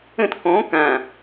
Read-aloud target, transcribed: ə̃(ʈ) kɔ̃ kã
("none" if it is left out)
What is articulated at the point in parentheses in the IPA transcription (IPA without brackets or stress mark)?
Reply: t